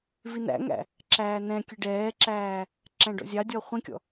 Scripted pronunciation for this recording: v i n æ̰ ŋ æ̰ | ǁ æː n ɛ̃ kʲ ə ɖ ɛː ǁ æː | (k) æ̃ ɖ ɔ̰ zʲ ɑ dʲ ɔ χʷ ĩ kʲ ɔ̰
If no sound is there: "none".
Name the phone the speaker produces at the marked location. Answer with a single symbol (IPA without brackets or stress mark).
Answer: ǁ